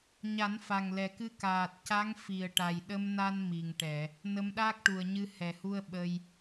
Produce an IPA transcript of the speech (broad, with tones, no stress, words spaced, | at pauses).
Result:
ɲa˨˩˦nfa˨˩ŋlɛ˨˩kɨ˧ kaː˨˩t̚ca˧˥ŋ fi˨˩ə̯ʈa˨˩j ɗə˧mna˧n mi˨˩ŋʈɛ˨˩˨ | nə˧˥mɗaː˦˥k̚ʈu˨˩ə̯ɲɨ˧ hɛ˨˩hu˧ə̯ ɓə˧j